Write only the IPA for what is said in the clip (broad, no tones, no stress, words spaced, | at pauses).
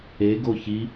e ɡoçi